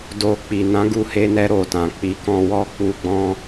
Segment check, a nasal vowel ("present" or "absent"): present